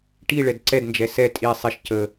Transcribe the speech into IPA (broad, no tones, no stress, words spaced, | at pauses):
ʈi ɭɛdǀɛdnd͡ʒɛ sɛ tʼi sˤiʃ cə